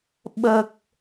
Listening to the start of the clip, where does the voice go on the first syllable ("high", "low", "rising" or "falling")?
low